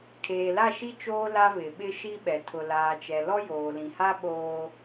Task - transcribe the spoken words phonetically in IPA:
kʰ eː˨ l a˦˨ ʃ i˦ t͡ʃ oː˦ l a˦ β ɪ˨ ɓ ɪ˦ ʃ i˦ ɓ ɛ˨ tʰ ʊ˨ l aː˨ t͡ʃ ɛ˨ l ɔ˦ j oː˨ l ĩ˨ h a˦ ɓ oː˦

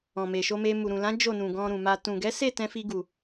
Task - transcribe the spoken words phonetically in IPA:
ɔ̃˨ m e˨ ʃ o˧ m e˧ m u˨ ɾ ũ˨ l ã˨˦ d͡ʒ o˦˨ n ũ˨ ɡ ɔ̃˧ ɾ ũ˨ m a˧ t ũ˨ ɡ ɛ˨˦ s e˦˨ t ɛ̃˧ f i˧ ɡ u˨

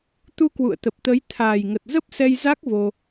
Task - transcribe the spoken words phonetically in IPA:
t̪ u˧ k w ṵ˧˨ ə̯ t̪ ə˨˩ p̚ t̪ ə˨˦ j t̪ʰ aː˨˩ j ŋ ə˨˩ t̚ z ə˦˥ p̚ s ɛ˧ j z a˦˥ k̚ v o˧

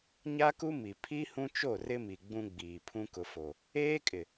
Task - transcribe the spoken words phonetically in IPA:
ɲ a˦ k u˦ m i˨ pʰ i˦ h ũ˦ t͡ʃ o˦˨ r ɪ˦ m i˨ ɡ͡b ũ˦ ɡ͡b iː˨ pʰ ũ˦ k ʊ˨ f o˨ | eː˦ kʼ ɪ˨

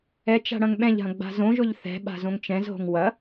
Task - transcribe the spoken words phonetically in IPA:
ɛ t͡ʃ a̤ ɽ ɐ̃ ŋ ɓ ɛ̃ ʎ ɦ ɐ̃ ɡ͡b a̤ z õ ʒ ʊ ʎ θ ɛ̤ ɓ a̤ z õ ŋ t͡ʃ ɛ̃ z ɦ o̤ ŋ w ɐ

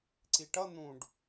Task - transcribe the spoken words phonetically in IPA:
ǀ i ʈ ʌ n̪ ũ ɖ

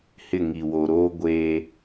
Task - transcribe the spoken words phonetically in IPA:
h ɪ˦˨ ŋ i˨ w o˨ ɾ oː˦ ɡʷ e˦

